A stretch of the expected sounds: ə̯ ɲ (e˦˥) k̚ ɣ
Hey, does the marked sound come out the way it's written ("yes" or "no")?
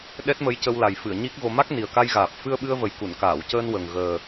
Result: no